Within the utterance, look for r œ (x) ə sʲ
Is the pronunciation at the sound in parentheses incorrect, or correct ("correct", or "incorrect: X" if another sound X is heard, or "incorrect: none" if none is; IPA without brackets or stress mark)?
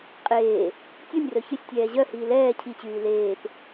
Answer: incorrect: ç